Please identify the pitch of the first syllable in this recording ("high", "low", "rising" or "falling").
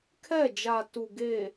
falling